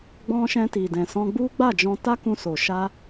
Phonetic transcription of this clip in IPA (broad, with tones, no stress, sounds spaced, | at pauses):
ɡ͡b ɔ̃˧ ʃ ɛ̃˧ t i˨ d ɛ̃˨ s ɔ̃˧ ɡ͡b u˦ ɡ͡b a˦˨ d͡ʒ ɔ̃˧ t a˦ k ũ˧ s o˨ ʃ a˧